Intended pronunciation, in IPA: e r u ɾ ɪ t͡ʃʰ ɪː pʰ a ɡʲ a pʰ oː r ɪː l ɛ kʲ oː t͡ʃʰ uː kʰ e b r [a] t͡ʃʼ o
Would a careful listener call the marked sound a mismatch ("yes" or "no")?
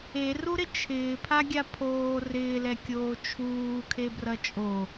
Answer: yes